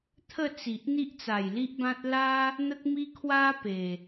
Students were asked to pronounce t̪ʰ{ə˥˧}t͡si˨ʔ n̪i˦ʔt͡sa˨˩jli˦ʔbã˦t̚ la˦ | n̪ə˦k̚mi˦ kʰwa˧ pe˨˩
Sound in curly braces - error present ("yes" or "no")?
no